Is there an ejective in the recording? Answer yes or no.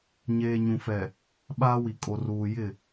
yes